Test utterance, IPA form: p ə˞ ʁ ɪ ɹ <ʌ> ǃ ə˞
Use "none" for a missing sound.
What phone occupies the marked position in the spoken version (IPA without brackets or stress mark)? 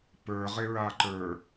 a